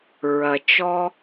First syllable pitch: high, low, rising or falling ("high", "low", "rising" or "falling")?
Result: low